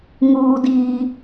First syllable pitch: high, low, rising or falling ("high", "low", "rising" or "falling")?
high